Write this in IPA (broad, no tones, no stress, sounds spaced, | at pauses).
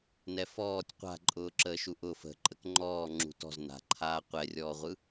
n ɛ f ɔː tʲ qʷ a̤ ǃʼ ʊː ǁ əː ʃ u ʔ ʊ f ə̤ ǃʼ ə k ŋ͡ǃ ɔː ŋ͡ǁ ṳ t ɔ̤ z n a̤ ǃʰ aː qʷ ɛ rʲ ɔː ʁʷ ɯ